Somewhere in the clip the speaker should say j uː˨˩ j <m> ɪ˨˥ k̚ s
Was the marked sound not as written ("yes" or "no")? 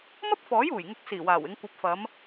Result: yes